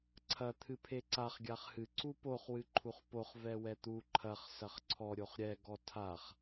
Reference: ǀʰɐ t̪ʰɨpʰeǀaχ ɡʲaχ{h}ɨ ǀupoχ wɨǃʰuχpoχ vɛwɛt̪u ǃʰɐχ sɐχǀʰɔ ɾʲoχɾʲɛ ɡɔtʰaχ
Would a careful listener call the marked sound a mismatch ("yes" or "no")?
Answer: no